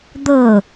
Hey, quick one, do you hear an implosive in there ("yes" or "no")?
no